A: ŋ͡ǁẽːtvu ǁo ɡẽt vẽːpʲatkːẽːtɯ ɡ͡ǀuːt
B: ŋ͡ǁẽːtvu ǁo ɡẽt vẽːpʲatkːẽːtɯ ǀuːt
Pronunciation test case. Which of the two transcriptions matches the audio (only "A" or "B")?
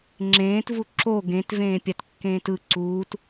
B